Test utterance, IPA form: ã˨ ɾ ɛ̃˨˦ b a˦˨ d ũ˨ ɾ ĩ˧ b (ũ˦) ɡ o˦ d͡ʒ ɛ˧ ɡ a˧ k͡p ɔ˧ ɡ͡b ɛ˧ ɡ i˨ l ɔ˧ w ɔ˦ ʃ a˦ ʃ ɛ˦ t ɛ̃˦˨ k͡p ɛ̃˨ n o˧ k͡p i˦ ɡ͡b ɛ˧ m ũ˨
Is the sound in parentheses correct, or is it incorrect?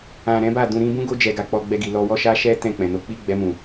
correct